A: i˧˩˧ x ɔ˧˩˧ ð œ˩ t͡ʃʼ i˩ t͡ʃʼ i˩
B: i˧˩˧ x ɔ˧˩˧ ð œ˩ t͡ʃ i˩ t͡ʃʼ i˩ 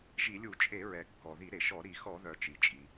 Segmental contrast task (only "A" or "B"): B